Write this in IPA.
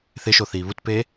θɪʃoθiː βutpeː

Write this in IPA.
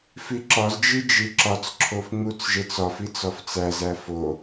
fiǁɒzd͡ʒi d͡ʒiǁɒt͡sǁʰof ŋ͡mut͡sʒet͡sɒfit͡s ɒft͡sæzæ fo

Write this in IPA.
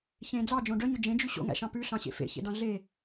çẽ d͡zɑd͡ʒõ ɖœɲɵ d͡ʒẽd͡ʒy ɕo̰ŋæ̰ʃɑ̃ pʉɬɑ̃ɕḛ fḛçḛdɑ̃ ɮe

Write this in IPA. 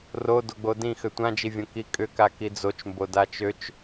ro doɡ͡bodĩ xʏtʷãd͡ʒivʲõ kikʼʏka kid͡zot͡ʃmbo dat͡ʃøt͡ʃ

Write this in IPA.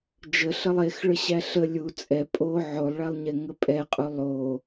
d͡ʒəɬəlˠ exɭəɕæ ɬə lʲu t͡sʼɛ pʼo ʕolˠɭælˠɲɛŋə pʼɛqʼu lˠo

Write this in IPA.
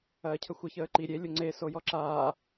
ɐːcʰəxʷə çəːǃi ɾʲelʲo ŋ͡ǀeso jɔǁaː

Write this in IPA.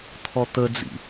t̪ʰɔt̪əd͡zḭ

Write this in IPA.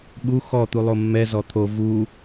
ɓu xɔ t̪ulˠomːɛ zɔt̪ʰo vu

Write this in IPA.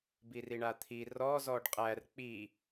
biriɳat̪ʰi rɔ zɔɖqʼær k͡pi

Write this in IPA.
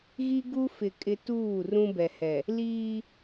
ɣi˦ɡu˦ fɪ˨ kʼɪ˦ tuː˦˨ rũ˦bɛ˨hɛ˨ | liː˦

